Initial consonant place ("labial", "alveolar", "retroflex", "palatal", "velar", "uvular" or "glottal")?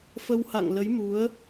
labial